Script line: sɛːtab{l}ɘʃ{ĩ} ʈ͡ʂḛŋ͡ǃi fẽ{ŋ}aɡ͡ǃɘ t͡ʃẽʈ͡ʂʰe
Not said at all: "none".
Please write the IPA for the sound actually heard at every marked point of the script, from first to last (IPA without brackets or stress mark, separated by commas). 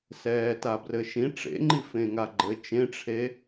r, ĩ, ŋ